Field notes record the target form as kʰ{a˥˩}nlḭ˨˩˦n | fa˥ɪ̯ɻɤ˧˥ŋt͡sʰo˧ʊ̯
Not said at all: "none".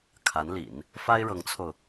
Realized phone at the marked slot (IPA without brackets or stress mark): a˧˥